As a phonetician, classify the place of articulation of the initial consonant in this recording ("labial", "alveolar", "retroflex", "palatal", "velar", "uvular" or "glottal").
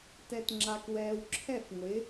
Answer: alveolar